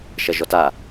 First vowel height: low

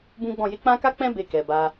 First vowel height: high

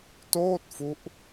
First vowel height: mid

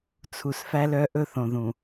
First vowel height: high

